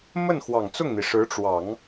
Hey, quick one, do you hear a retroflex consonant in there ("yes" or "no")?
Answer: yes